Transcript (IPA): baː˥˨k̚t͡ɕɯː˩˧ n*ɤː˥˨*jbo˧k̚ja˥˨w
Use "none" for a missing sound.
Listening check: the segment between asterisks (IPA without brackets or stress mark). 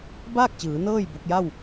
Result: ɤː˥˨